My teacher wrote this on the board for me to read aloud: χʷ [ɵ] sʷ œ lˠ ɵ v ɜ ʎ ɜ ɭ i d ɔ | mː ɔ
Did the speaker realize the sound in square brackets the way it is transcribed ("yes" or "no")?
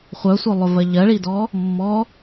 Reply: no